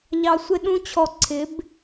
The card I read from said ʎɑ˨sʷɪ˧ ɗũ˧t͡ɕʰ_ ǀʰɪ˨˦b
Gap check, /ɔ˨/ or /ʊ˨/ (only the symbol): ɔ˨